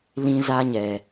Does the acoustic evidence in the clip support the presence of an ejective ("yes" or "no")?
no